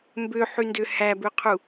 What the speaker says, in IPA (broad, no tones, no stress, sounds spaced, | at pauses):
m b ø ħ y n d ø h æ b ø qʰ u